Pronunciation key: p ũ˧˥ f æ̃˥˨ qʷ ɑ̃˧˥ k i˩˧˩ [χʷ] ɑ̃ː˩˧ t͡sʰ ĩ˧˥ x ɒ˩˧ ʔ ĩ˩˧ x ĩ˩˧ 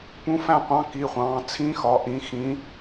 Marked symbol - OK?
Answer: yes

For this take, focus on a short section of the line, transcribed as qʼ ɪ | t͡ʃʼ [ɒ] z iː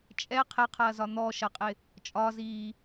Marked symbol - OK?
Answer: yes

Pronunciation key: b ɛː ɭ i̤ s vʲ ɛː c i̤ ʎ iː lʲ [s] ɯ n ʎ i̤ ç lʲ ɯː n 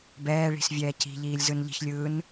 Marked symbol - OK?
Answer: no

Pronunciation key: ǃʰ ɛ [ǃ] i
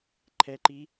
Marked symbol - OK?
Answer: yes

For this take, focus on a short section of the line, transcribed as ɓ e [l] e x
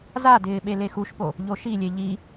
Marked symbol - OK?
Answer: yes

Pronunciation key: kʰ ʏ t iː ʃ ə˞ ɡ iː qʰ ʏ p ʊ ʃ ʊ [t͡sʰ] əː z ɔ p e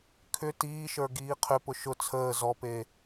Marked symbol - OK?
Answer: yes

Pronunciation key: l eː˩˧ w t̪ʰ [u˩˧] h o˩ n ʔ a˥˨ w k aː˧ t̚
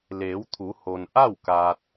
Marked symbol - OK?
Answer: yes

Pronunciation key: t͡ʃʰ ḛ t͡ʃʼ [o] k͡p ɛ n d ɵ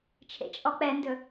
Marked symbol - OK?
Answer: no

